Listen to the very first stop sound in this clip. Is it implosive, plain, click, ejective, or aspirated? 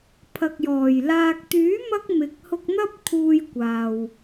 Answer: aspirated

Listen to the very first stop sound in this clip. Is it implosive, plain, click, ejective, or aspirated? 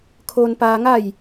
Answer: aspirated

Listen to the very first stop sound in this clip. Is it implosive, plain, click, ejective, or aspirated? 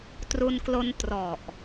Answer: plain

